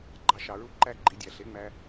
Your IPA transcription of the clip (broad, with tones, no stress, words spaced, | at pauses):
ɡ͡ǃɑ˧ʃɑ˩ɹu˥ ǃæ˥˩ɡ͡ǃi˩˥ dʲæ˩ɬe˩˥ŋ͡mæ˧